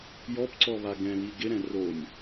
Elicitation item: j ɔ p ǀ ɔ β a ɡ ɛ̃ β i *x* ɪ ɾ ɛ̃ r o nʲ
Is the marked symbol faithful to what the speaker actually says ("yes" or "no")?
no